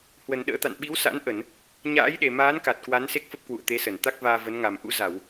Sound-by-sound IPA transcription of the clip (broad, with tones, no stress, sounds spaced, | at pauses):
h w ə˨˩ n ɗ ə̰ː˧˥ t̪ a̰˧˨ n ɓ i˨˦ w s a̰˧˥ n ʔ ə˧˩˨ n | ɲ a̰ː˧˥ j ɗ e˨˩ m aː˨˦ n k a˨˩ t̚ k w a˨˦ n s e˦˥ k̚ f ə˦˥ p̚ k w ṵ˧˨ ə̯ t̪ e˨˦ s ə˧˩ n t̪ a˦˥ k̚ v aː˧ v ə˨˦ n ŋ a˨˩ m ʔ ṵ˧˥ z a˧˩˨ w